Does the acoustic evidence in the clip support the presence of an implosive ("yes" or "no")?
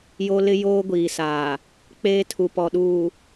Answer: yes